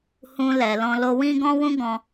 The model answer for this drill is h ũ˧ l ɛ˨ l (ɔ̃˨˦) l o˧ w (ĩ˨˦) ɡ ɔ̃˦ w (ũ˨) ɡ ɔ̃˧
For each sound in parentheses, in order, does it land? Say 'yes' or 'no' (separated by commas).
no, no, no